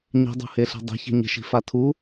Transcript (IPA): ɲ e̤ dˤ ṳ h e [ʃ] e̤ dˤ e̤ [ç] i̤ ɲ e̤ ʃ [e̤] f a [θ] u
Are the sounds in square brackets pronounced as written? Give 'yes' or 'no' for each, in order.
no, yes, no, no

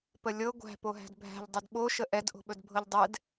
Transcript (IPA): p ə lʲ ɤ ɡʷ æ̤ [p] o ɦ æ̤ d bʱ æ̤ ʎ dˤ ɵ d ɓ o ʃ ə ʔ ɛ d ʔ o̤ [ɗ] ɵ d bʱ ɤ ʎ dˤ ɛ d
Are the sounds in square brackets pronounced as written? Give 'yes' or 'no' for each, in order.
yes, no

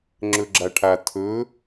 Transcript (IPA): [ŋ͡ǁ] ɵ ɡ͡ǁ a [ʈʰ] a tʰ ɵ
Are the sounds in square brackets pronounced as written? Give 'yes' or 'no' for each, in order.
yes, yes

